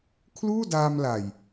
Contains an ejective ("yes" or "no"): no